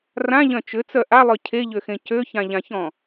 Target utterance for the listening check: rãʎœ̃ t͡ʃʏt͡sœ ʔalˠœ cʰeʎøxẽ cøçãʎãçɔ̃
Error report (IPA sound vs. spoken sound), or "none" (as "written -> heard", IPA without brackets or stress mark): none